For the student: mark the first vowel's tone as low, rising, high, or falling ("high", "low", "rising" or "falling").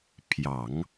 low